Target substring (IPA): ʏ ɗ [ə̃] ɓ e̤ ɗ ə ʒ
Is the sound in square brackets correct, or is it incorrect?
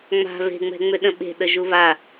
correct